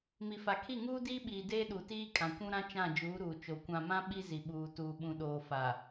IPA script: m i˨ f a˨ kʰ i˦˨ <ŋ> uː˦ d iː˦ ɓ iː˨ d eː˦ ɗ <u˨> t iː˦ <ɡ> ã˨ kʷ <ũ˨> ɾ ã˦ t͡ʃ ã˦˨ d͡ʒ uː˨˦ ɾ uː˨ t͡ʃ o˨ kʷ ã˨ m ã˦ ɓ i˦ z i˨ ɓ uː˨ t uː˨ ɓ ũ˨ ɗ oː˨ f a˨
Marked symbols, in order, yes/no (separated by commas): yes, yes, no, no